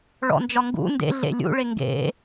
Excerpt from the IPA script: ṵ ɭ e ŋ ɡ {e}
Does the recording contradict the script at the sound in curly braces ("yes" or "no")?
yes